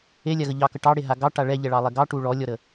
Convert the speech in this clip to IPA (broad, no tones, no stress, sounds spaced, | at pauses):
e lʲ a ɣ ə ʎ ɑ k ə ʈ ɑ ɽ e ɦ a ɡ ɑ ʈ a ɭ ɛ ʎ ɛ ɭ ɑ lˠ ɛ ɡ ɑ ʈ u ɭ ɔ lʲ ɔ ɾ ə